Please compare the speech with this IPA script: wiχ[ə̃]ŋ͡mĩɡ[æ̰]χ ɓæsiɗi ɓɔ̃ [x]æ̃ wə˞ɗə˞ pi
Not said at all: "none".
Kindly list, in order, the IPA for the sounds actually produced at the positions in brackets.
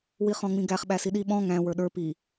ɔ̃, æ, ŋ

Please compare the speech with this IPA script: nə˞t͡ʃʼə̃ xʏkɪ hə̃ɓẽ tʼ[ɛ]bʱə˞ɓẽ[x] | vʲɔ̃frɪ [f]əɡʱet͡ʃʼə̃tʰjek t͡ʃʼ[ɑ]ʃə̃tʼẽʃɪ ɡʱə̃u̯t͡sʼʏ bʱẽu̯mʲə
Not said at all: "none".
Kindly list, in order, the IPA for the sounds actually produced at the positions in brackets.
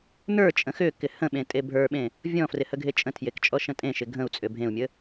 e, none, h, ɔ

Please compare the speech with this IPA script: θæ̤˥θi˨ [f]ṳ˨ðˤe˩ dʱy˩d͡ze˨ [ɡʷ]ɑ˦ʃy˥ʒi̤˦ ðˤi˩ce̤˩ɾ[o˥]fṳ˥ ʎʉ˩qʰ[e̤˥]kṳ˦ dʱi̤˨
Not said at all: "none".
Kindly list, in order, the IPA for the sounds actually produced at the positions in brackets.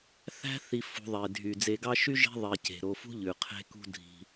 f, ɡ, o˨, e̤˦

